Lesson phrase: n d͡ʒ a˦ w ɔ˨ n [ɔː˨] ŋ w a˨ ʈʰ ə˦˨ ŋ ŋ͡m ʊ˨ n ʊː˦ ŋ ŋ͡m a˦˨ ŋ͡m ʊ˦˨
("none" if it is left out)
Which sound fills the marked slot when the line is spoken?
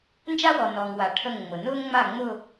ɔː˨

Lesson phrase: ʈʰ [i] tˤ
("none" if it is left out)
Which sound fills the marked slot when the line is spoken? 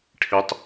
i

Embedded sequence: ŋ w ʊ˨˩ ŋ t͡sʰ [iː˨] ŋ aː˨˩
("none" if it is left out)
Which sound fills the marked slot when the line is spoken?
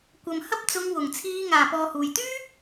iː˨˧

